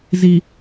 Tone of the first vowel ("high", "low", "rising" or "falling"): low